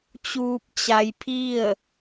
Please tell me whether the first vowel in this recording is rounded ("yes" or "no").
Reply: yes